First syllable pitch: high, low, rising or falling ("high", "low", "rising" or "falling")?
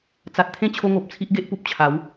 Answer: low